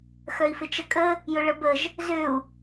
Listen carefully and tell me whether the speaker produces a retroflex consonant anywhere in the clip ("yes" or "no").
yes